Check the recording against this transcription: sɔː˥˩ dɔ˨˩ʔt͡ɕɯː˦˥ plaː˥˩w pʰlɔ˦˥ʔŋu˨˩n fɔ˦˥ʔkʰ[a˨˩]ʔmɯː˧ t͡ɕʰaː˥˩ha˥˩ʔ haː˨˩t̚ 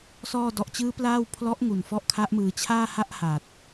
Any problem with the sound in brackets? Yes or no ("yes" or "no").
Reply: yes